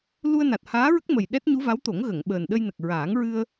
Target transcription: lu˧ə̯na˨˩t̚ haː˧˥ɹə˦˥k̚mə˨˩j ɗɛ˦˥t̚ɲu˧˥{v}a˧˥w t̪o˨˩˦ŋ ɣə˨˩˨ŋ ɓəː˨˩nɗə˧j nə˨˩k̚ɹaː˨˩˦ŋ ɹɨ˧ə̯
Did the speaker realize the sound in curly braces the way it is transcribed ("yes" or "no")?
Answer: yes